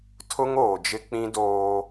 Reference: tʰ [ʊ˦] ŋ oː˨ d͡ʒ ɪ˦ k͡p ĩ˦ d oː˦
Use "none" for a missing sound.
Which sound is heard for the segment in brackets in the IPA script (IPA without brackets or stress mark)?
ʊ˦